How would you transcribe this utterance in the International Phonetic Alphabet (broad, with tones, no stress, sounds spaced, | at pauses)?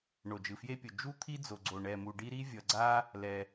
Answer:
ɳ o˩ d͡ʒ ɯ˩ f j e˦ pʲ o˩ d͡ʒ u˦ t̪ʰ i˦ d͡z o˩ ɡ͡ǀ o˩ ɳ ɛ˩ m u˩ ɖ i˦ ɾ i˦ vʲ ʌ˩ ɡ͡ǀ a˦ | l ɛ˩